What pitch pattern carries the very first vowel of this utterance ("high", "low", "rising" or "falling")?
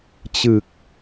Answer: low